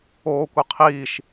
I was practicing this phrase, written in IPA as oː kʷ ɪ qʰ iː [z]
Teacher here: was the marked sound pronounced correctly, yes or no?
no